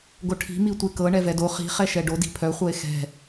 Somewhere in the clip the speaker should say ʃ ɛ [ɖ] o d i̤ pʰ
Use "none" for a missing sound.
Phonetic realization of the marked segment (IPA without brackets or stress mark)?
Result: ɖ